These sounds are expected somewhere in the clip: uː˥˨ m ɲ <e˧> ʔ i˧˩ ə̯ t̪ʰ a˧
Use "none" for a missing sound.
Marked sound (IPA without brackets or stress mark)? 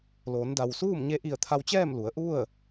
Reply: e˧˥